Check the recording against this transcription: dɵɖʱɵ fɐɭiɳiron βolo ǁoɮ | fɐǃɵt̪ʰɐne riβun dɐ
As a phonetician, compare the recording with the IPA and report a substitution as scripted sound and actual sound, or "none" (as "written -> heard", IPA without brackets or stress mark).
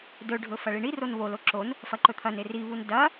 ɮ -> n